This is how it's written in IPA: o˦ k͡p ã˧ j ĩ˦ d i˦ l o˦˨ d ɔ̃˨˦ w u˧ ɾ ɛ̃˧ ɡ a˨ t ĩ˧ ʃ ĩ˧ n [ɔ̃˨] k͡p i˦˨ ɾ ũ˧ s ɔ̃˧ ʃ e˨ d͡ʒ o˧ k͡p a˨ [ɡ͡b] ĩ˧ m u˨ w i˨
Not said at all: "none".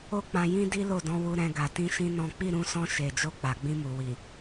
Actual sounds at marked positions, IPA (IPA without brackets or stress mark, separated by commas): ɔ̃˦, ɡ͡b